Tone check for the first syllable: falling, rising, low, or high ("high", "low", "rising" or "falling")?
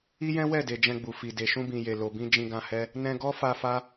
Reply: high